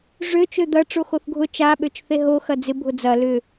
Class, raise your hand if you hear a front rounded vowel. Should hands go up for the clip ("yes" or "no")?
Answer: yes